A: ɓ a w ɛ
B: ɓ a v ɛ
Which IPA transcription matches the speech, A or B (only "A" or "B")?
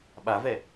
B